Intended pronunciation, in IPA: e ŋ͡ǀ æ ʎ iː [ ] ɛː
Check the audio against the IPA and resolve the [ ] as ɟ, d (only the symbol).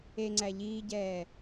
ɟ